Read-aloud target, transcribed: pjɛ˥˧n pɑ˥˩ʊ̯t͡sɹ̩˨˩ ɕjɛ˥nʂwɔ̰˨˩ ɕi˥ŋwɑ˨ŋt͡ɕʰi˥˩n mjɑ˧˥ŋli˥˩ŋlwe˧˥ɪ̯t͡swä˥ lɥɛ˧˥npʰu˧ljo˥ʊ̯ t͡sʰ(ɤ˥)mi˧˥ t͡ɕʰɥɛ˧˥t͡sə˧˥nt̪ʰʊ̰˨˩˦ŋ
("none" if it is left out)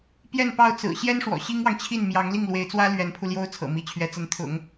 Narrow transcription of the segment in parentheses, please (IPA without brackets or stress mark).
ɤ̰˨˩